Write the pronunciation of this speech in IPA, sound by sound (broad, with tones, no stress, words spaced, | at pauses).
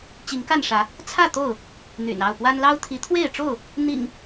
t͡ɕi˨˦ŋka˥˨nʂä˨˦ | t͡sʰä˥˨ t̪o˥˨ʊ̯ | n̪y̰˨˩nɑ˥˨ʊ̯pwa˦n lɑ˦ʊ̯t̪ʰi˨˦t̪ʰwe˥˨ɪ̯ʈ͡ʂo˥˨ʊ̯ | n̪ḭ˨˩ŋ